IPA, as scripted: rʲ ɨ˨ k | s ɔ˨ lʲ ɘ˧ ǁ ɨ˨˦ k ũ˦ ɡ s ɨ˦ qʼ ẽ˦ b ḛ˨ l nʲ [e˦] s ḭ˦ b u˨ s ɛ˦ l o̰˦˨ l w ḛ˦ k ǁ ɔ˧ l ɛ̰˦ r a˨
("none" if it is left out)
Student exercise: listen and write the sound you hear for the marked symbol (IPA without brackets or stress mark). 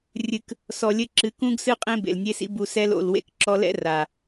e˦